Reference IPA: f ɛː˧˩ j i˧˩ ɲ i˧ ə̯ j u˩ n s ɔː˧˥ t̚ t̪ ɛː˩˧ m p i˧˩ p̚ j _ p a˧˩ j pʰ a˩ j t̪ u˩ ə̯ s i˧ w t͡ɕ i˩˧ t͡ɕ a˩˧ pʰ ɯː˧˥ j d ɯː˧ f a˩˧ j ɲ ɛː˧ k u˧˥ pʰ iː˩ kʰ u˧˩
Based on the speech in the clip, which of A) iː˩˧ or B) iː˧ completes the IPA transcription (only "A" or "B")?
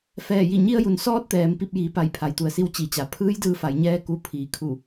A